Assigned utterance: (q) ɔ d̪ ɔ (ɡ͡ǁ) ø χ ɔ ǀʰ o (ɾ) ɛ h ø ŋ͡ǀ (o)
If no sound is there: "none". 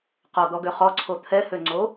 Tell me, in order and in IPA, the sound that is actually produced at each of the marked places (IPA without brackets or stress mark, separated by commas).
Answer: q, ɡ, t̪ʰ, o